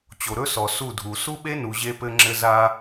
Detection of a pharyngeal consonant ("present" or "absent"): absent